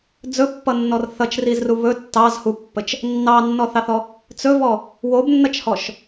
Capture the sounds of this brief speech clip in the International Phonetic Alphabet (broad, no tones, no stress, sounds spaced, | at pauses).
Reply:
d͡z ɵ pː ʌ nː ɔ r θ ʌ t͡ʃ r i z r u β ɵ tː ɑ z h u pː ə t͡ʃ | nː ɑ nː ɔ θ ɑ θ ɔ | t͡s ɵ v ɔ | w o b nː ʌ t͡ʃ h ɔ ʃ